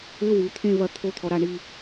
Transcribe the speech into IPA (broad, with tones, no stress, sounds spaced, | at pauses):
ɘ˧˥˧ w u˩˧ t̪ʰ ẽ˥˧ v ɐ˥˩ t̪ʰ o˥ t̪ʰ ɔ˧ ɾ a˥˧ ɳ i˥˧